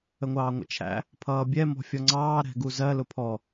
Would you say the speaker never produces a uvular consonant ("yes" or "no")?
yes